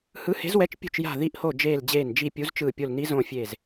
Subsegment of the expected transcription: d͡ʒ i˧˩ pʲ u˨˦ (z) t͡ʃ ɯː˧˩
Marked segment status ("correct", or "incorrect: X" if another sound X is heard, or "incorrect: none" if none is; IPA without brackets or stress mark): correct